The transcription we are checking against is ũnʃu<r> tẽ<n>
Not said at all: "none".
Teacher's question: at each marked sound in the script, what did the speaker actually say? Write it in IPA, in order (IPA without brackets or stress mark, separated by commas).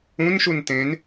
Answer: n, n